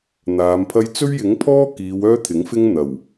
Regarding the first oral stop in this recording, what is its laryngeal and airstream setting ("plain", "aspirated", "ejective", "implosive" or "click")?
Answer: aspirated